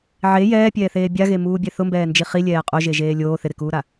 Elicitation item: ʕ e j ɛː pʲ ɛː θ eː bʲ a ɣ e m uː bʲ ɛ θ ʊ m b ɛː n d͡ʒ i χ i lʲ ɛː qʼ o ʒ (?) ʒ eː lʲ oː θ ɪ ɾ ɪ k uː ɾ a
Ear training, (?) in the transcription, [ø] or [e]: e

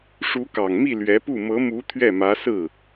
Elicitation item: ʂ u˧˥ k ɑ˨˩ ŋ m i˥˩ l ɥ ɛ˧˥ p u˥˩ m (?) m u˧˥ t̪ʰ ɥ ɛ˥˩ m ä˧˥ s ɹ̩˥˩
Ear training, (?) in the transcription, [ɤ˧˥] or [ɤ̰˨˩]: ɤ˧˥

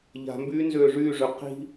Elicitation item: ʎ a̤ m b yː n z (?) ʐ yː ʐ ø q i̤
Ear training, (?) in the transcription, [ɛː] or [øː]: øː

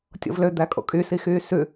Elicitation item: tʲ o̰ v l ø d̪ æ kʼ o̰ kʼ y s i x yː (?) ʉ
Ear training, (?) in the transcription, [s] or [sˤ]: s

